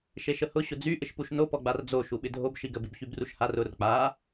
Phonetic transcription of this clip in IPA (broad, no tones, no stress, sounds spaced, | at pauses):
ʃ e ʃ ə h ʊ ɕ ʊ d͡z y ʔ ɪ ʃ p u ʃ n o p ɔ ɡ͡b a r d͡z o ʃ u ɓ ɪ dʱ o b ʃ i ɡ ə b i b ç y b r u ʃ h a r ʊ r k͡p a